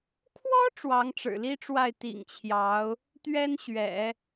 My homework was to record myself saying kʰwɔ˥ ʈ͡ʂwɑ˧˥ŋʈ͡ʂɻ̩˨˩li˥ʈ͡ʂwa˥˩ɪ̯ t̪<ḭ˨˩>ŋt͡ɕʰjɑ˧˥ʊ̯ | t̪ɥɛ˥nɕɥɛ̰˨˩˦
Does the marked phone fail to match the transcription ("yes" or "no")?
no